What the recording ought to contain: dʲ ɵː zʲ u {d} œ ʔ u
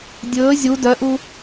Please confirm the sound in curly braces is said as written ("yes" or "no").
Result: yes